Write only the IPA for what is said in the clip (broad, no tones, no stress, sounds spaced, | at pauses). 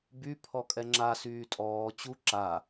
b y pʰ ɔ kʼ ɛ ŋ͡ǁ a s yː tʼ ɔː t͡ɕ u ǁ a